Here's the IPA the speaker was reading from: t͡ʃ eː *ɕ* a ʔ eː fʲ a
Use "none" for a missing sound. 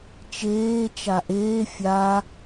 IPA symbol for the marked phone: t͡ʃ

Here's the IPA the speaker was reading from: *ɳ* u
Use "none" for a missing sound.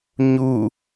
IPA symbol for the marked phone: ɲ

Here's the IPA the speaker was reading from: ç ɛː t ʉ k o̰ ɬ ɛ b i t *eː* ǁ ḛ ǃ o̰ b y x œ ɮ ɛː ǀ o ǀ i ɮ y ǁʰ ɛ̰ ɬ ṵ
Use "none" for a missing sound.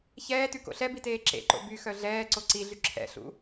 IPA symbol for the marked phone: eː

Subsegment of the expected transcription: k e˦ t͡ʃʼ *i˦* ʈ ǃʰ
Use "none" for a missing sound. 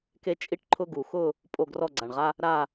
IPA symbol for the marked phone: i˦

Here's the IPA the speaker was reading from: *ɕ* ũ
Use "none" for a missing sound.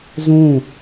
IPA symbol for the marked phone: z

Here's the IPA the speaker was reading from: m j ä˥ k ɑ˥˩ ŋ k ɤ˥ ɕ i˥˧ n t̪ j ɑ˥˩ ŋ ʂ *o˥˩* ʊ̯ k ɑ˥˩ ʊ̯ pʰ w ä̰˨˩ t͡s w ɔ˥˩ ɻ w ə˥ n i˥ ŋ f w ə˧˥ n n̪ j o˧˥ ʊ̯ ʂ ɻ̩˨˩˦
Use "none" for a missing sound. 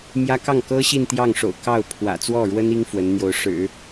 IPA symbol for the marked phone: o̰˨˩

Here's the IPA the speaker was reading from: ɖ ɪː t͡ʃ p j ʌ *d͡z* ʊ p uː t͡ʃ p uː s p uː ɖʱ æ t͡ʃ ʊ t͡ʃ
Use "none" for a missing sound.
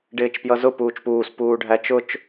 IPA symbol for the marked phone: z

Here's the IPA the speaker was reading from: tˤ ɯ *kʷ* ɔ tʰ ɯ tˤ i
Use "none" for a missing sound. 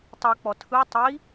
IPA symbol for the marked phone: k͡p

